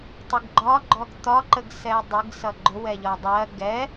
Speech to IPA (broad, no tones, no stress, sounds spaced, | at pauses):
tˤ ɪ ɡ ɡ͡ǃ ɒ ɡ͡ǃ ɔ ɡ t̪ ɒ ǃ ə ɡ s ɛ dˤ ɪ ɡ s ʌ ɡ͡ǃ ʊ w ɛ ʎ ɒ dˤ ɜ ɡ ɛ